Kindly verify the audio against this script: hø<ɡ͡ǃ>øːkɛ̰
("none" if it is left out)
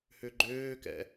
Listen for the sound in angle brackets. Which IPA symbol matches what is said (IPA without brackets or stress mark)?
ɡ͡ǃ